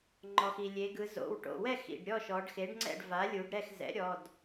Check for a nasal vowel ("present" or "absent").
absent